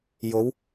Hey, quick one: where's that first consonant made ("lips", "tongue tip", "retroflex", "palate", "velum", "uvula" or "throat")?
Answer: palate